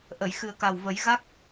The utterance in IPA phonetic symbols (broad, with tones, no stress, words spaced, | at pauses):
ʔə˨˩˨j xɨ˨˩ə̯ka˨˩w və˨˩˦j ɣa˦˥k̚